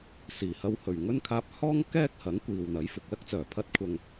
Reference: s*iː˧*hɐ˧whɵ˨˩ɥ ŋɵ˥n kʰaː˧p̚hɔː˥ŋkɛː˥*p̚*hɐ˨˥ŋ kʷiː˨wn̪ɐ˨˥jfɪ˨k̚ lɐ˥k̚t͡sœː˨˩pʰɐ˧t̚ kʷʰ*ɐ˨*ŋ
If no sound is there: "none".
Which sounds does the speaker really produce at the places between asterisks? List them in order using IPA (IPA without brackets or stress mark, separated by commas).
iː˨˩, k̚, ɐ˨